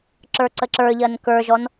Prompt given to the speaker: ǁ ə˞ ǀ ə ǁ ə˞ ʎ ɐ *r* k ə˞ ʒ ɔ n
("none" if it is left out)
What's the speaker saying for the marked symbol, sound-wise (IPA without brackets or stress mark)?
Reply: n